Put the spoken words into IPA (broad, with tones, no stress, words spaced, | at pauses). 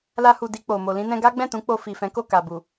la˧hu˨ di˧k͡po˨ mo˨lĩ˧nɛ̃˧ɡa˦ ɡ͡bɛ̃˦˨tũ˨˦ k͡po˧ fi˨fɛ̃˨˦ko˦˨ ka˨bu˨